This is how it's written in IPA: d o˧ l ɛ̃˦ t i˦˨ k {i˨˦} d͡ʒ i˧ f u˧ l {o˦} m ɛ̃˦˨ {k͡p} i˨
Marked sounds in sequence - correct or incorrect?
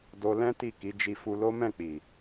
correct, correct, correct

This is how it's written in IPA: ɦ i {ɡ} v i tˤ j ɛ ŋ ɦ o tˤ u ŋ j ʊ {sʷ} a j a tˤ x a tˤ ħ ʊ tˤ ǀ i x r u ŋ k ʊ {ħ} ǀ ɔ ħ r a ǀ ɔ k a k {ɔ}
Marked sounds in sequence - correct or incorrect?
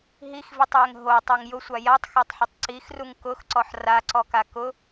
incorrect: x, correct, incorrect: x, incorrect: ʊ

